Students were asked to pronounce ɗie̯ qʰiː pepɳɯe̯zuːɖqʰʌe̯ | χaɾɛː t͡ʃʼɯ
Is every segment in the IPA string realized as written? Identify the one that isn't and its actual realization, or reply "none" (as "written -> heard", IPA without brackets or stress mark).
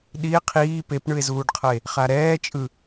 none